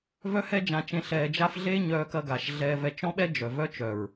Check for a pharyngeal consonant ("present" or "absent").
absent